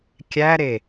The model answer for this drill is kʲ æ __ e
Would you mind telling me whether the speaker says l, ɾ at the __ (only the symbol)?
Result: ɾ